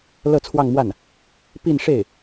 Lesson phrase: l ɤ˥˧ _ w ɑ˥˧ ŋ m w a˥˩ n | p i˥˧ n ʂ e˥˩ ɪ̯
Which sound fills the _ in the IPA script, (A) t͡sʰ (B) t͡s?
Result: A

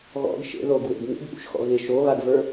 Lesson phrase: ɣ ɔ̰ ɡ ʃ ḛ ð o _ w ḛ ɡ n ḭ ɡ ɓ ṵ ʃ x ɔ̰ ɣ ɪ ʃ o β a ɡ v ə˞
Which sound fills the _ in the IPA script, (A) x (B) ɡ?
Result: B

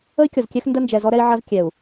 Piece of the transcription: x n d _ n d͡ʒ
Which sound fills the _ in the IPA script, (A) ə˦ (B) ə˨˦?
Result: A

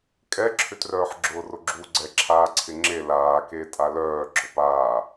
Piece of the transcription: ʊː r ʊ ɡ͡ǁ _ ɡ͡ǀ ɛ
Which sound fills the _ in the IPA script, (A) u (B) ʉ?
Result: A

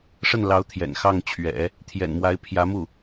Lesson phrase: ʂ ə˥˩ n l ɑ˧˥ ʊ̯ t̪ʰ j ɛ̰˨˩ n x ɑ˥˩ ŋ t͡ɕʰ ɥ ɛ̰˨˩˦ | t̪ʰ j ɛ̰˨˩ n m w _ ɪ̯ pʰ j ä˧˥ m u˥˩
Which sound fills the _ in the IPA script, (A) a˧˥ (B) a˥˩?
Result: A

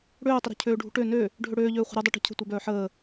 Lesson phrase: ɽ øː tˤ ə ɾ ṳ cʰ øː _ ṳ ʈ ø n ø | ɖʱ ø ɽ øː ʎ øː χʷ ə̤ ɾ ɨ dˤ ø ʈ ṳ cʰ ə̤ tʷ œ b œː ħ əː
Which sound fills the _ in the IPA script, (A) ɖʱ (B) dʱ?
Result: A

